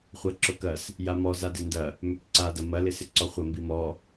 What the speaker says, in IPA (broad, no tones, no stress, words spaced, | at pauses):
χʷɐǁʊkɐs | jamɔ zadɪndɐ | mʏkǀa dɐmɐ lɪsɪǀɔχʷɐ mbimɔ